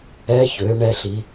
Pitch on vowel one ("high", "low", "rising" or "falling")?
rising